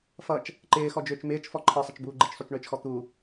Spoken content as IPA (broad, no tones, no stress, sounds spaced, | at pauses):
f ʌ t͡ʃ | ǃ ɪː x ɔ d͡ʒ ʏː t͡ʃ m ɪː t͡ʃ f ɔ ǃʰ ɤ sˤ ɪ t͡ʃ b uː ɡ͡ǃ ɪ t͡ʃ sˤ u t͡ʃ ɳ ʏː t͡ʃ x ɔ t̪ u